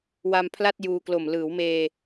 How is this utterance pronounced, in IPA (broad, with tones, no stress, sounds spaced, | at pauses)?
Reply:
w a˧ m pʰ l a˥˩ t̚ j uː˧ k l o˨˩ m l ɯː˩˦ w m eː˧